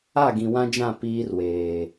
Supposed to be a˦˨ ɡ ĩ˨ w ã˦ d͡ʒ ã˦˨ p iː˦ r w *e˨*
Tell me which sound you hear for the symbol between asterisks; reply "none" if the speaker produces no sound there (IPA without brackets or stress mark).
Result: eː˨